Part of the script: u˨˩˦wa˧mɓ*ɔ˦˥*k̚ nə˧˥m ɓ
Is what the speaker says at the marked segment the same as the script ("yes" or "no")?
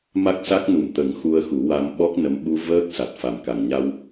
yes